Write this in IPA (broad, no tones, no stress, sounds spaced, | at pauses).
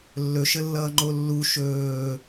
lː ɵ ʃ ə lː ʌː ŋ͡ǃ o lː u ʃ ɵː